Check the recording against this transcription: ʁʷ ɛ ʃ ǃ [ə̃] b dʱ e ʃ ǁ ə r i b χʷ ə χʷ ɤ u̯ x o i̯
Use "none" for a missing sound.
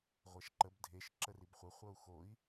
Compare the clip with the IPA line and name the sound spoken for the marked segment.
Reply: ə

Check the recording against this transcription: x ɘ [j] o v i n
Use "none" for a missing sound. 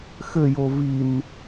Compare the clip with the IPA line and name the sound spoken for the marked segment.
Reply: j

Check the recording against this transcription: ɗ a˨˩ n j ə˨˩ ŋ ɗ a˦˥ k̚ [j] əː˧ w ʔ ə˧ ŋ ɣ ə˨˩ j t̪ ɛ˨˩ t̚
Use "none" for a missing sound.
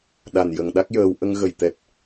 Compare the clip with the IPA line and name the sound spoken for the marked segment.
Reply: j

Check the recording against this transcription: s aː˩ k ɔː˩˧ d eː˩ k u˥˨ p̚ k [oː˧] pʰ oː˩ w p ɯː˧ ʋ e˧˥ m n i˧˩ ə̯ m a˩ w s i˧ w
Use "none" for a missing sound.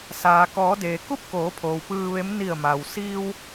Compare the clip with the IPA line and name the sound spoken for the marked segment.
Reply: oː˩˧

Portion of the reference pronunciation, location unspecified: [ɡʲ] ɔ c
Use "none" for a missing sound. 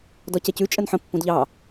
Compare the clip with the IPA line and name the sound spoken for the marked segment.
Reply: d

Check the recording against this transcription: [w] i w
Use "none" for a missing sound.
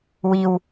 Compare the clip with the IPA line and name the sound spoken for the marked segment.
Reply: w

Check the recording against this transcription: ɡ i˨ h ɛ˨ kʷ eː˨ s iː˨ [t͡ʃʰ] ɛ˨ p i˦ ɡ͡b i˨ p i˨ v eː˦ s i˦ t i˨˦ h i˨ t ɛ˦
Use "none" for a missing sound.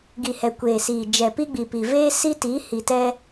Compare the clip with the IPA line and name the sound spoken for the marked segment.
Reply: d͡ʒ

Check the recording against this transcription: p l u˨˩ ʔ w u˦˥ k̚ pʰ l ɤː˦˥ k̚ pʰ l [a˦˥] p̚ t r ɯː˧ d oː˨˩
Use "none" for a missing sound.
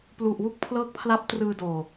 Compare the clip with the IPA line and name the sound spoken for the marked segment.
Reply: a˦˥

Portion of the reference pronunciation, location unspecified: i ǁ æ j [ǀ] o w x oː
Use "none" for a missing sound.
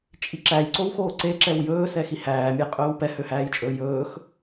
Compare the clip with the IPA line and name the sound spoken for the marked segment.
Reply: ǀ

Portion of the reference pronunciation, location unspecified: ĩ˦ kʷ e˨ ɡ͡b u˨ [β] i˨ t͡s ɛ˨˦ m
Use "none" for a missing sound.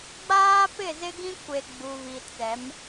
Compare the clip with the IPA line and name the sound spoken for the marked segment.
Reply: β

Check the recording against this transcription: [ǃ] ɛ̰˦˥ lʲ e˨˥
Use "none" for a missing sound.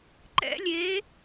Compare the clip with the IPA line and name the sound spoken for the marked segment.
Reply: ǃ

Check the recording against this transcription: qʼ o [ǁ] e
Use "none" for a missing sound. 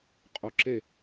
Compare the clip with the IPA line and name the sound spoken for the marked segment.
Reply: ǁ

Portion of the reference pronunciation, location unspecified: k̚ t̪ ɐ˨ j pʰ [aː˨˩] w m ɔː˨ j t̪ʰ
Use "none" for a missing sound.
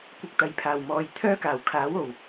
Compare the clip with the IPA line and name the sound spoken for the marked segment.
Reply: aː˨˩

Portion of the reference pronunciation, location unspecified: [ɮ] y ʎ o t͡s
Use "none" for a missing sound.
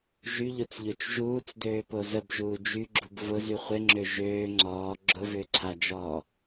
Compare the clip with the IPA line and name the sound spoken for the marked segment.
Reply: ʒ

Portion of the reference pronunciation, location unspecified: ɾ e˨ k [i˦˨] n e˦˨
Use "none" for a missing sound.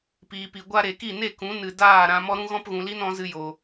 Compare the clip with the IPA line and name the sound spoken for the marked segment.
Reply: i˦˨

